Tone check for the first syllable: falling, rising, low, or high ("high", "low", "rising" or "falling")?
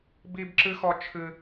high